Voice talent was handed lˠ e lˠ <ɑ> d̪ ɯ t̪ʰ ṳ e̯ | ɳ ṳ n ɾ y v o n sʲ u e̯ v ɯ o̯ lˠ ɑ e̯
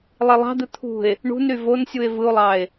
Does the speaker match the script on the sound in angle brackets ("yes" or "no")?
no